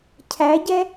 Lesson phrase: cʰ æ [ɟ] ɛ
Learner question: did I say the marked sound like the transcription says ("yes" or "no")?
yes